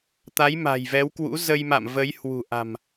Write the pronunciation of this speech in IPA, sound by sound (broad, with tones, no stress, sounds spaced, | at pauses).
t̪ a˨˦ j m a̤˨˩ j v ɛ˨˦ w k w ṵ˧˥ z ə˧ j m a̰˧˨ m v ə˨˦ j h w ṳ˨˩ ʔ a̤˨˩ m